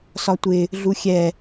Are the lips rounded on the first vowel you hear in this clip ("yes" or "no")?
yes